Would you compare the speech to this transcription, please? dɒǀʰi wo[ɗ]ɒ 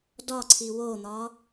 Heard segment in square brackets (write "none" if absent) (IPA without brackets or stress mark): n̪